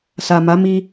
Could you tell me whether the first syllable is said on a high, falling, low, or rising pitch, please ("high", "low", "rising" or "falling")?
low